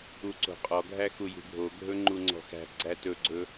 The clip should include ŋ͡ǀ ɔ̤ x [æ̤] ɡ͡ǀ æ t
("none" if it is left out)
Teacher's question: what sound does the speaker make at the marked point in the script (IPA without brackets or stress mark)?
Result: æ̤